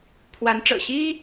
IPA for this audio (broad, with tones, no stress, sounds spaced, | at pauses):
pʰ w a˧˥ n ʈ͡ʂ ɤ̰˨˩ ɕ i˥